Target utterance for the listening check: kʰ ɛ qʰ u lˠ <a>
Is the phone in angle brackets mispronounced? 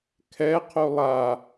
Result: no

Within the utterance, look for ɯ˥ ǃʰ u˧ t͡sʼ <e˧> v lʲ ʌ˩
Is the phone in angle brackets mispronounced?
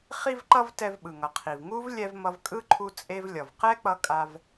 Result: no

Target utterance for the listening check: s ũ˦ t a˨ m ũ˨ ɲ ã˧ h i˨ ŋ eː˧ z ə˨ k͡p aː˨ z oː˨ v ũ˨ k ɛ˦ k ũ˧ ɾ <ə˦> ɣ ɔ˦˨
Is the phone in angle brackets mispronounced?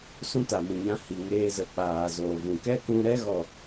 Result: yes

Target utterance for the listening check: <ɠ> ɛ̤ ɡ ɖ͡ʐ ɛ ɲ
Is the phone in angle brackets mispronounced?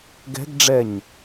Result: yes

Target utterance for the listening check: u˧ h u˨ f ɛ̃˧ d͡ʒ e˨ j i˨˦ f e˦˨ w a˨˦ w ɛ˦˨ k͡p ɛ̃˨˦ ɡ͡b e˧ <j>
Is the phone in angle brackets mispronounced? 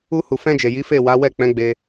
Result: yes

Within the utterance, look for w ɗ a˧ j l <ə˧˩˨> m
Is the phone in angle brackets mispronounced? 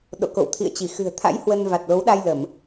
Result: no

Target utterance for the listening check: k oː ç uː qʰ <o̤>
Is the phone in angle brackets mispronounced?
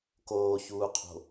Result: no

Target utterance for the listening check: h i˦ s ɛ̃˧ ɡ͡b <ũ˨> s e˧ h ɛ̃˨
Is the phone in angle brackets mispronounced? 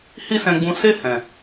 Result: yes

